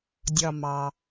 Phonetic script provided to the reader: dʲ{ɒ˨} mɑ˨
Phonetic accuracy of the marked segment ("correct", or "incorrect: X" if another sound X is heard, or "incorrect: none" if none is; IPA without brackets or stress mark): correct